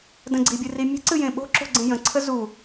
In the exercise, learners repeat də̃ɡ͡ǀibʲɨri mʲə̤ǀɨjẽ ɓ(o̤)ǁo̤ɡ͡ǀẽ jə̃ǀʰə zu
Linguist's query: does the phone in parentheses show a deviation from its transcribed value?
no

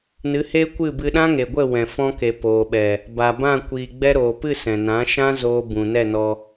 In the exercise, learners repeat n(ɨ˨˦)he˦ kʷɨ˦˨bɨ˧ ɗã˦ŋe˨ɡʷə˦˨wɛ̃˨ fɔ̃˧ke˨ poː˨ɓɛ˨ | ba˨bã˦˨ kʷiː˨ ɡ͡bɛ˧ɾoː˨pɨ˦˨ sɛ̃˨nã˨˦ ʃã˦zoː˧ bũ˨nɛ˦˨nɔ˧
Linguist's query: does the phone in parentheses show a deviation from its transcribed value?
no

